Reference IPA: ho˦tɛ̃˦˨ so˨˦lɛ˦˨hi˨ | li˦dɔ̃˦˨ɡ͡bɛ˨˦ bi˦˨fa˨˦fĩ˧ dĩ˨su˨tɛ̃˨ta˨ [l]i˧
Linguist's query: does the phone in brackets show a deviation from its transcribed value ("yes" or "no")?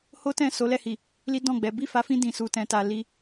no